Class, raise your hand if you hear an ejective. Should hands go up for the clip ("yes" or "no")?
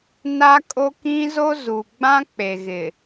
yes